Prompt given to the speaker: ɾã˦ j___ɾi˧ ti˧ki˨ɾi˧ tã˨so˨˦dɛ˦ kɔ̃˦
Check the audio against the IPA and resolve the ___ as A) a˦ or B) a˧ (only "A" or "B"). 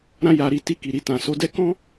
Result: B